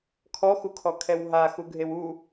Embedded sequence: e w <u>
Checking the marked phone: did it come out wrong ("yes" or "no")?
no